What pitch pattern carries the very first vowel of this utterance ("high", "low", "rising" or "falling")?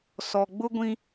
low